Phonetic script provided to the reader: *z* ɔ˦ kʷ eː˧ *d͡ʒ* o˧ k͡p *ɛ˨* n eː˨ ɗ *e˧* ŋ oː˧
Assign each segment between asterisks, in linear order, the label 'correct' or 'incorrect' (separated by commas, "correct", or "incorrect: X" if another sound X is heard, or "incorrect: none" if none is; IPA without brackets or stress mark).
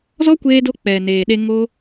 correct, incorrect: d, correct, correct